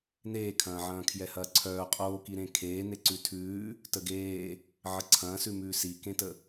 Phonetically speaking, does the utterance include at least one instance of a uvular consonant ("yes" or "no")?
yes